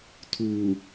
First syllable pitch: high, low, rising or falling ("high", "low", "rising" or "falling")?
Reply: low